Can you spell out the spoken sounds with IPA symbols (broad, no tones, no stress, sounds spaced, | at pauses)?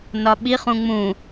n ɒ ɓ i χ ũ ŋ͡m ũ